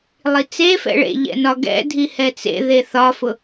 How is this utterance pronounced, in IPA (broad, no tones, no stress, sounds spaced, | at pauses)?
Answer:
lˠ i t͡s e f ɛ̰ ɭ ḛ ʎ ɛ̰ n ɒ ɡ ɛ̰ dʱ i h ɛ t͡s ḛ ð e θ ɒ f ʊ